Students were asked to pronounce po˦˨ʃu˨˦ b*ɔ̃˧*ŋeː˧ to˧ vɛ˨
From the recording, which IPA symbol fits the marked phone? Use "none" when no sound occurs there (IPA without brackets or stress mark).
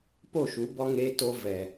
ɔ˧